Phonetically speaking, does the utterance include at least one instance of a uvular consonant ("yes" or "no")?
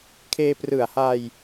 no